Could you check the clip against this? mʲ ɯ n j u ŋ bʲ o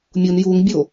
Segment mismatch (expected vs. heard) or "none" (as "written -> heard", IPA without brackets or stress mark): ɯ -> u